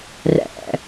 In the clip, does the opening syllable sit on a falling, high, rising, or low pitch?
low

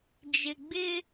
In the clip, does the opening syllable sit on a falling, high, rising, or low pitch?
low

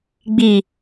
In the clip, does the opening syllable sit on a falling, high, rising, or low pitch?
low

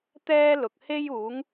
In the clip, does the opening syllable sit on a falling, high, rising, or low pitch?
high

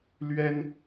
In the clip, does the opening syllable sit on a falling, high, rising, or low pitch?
high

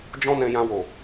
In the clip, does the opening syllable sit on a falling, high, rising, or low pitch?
high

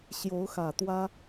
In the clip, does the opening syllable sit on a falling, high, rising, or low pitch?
rising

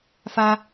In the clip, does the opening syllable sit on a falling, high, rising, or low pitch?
high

